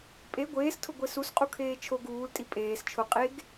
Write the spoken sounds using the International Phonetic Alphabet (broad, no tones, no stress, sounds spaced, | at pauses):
pʼ e ɡʷ eː s tʰ ʊ ɡʷ e s u s qʼ u kʰ eː t͡ʃʰ o ɡ uː l tʼ i pʼ eː s t͡ʃʰ ʊ qʼ e ɡ